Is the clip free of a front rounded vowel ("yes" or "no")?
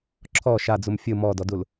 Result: yes